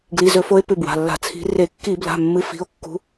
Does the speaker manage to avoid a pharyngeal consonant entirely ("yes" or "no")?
yes